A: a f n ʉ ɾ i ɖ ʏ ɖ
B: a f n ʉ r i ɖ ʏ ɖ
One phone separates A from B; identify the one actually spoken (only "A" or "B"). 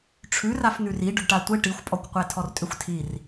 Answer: B